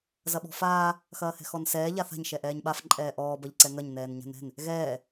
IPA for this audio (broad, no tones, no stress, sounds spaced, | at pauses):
z ɐ ɓ ɔ̤ f aː | x ɐː h ɛ̤ x ɔ n s ɛː ʎ a θ a̤ ɲ ʃ ɛ ʔ ɛː ɲ ɓ a f ǃʼ ɛː ʔ ɔː b ɐ ʎ ǀ ɛ ŋ ɐ ɲ n ɛː n ɲ a̤ n ɛ̤ n | ɣ ɛː